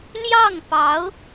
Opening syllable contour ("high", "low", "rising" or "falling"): falling